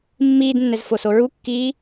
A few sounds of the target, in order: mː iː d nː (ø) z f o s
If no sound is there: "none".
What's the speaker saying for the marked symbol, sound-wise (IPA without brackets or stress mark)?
ɛ